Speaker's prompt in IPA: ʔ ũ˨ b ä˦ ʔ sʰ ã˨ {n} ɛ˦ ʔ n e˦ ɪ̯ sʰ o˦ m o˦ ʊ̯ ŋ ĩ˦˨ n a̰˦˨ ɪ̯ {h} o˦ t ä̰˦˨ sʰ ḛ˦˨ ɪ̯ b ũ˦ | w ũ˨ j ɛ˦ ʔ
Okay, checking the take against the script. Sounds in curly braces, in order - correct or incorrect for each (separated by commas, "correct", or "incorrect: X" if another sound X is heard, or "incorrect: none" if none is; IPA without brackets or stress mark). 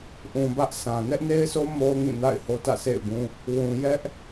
correct, correct